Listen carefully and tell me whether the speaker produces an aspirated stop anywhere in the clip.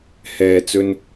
no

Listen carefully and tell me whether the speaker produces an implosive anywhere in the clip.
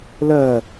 no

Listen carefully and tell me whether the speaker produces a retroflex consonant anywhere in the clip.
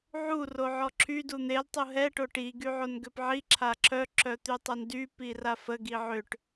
yes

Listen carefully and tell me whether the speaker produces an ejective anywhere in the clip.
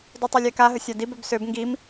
no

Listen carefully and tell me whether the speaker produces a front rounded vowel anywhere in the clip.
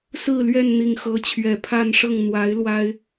no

